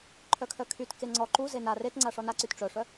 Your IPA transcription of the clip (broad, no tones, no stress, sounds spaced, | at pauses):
ǃʰ œ kʰ œ kʰ y t k e ŋ͡ǀ ɔ ǃ u z e n a r e t ŋ͡ǀ a ʂ ɔ n a ǀ y t ʈ͡ʂ œ ʂ œ